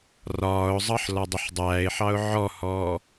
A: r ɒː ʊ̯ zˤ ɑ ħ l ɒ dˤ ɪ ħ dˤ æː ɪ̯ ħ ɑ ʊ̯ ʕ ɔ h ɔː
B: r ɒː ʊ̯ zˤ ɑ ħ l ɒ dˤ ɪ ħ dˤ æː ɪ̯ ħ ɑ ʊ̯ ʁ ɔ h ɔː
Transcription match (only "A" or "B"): A